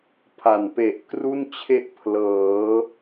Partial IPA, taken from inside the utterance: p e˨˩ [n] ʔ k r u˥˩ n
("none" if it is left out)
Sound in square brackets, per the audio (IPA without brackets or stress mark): none